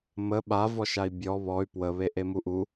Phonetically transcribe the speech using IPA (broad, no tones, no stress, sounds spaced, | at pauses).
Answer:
m ə ɓ a v ɔ ʃ a i̯ bʲ ɔ β ɔ y̯ p w ə β e ʔ e m u ʔ u